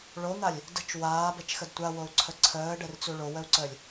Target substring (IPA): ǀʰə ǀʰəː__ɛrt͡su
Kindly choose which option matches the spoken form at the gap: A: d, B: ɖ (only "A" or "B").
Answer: B